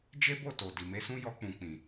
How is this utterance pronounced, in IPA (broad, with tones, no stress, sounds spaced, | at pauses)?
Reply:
d͡ʒ e˦ b o˦˨ t o˨ d i˨ m e˨˦ s ũ˦ j ɔ˧ k͡p ũ˨ k͡p ĩ˨